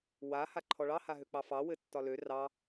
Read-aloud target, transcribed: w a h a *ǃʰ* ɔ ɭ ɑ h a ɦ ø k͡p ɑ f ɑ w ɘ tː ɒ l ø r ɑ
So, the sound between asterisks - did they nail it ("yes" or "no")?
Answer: yes